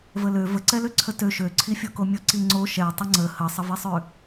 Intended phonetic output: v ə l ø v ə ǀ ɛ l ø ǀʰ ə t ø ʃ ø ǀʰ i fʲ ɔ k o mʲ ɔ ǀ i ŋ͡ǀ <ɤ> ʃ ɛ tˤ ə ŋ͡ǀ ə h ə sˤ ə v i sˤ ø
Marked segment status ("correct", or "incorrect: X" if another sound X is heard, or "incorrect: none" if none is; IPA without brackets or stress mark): incorrect: o